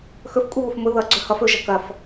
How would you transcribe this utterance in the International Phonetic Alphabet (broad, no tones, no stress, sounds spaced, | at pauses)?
x ɵ f kʷʼ e β ʊ f m ʊ ð ʌ ɡ͡ǀ ɵ h ʌ f ɵ ʒ ɐ k ɐ f